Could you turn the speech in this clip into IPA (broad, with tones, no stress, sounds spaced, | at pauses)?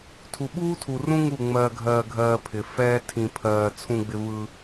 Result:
tʰ u˨ ɓ uː˦ tʰ u˨ r ũ˦ ŋ u˦˨ ŋ͡m ɜː˧ ɡʱ ɜː˧ ɡʱ ɜː˧ pʰ ɪ˨ f ɛː˦ tʰ ĩ˧ pʰ ɜː˧ t͡sʰ ũ˧ ɡ͡b ɪ˧ v ɯ˧